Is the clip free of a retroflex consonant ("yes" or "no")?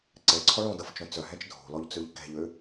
no